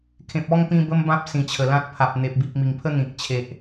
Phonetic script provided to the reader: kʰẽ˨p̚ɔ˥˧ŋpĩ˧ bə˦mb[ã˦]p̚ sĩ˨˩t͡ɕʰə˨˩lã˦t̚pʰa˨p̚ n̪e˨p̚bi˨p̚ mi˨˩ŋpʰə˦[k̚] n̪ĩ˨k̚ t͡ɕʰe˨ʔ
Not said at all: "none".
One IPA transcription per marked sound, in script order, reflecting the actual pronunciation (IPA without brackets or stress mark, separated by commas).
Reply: ã˦, none